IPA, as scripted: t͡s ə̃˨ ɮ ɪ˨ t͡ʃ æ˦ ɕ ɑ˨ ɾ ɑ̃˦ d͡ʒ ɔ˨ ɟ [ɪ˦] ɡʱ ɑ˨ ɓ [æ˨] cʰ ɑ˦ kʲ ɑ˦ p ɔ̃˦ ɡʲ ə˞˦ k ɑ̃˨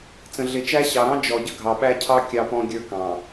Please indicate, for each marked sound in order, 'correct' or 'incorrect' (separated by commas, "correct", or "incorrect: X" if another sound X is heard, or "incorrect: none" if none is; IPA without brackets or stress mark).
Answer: incorrect: ə˦, incorrect: æ˦